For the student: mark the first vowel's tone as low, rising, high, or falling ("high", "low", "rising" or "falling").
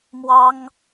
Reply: high